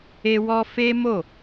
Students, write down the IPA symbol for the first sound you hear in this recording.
e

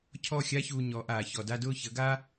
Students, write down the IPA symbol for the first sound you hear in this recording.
cʰ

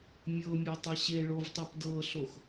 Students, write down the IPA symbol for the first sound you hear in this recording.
mʲ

